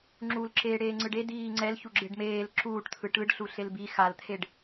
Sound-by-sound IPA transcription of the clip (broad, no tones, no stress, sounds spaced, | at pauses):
ŋ͡ǁ u l ǁ eː ɽ eː ŋ͡ǀ ɯ ɖ e d iː ŋ͡ǀ ɛ l ç u ɡ͡ǁ e ɖ m eː l ǁ uː ʈ t̪ʰ ɯ ʈ ɯ ɖ ɬ u ɬ e l b i x a l t̪ʰ e ɖ